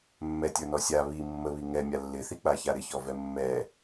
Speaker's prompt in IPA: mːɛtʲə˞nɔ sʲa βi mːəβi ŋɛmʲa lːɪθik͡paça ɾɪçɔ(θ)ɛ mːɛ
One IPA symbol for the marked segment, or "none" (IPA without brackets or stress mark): v